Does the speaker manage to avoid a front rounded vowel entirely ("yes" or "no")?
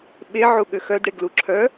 no